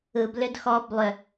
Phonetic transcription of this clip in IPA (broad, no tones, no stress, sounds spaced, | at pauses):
ɯ b l ʏ d x ɔ b lˠ ʏ